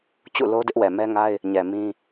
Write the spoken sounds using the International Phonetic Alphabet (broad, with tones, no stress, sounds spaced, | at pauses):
t͡ɕ ṵ˦˨ l o˦ d ɪ˦ ʔ w ɛ˨ m ɛ˦ ŋ a˦ ɪ̯ | ɲ ɛ˨ m ĩ˦